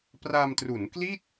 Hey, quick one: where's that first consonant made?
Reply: lips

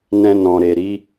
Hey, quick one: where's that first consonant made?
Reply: tongue tip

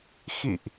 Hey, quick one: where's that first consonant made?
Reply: velum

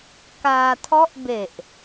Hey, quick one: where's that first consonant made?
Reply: velum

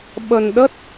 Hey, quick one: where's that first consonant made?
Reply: lips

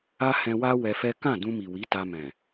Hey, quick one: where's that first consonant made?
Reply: throat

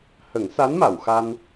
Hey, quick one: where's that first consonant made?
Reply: throat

